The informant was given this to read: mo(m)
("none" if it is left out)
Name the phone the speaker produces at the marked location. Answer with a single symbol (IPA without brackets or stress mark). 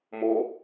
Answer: none